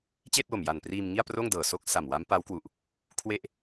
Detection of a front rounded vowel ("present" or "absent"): absent